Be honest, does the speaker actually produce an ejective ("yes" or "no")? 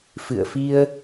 no